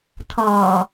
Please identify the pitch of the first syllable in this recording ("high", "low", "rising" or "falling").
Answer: low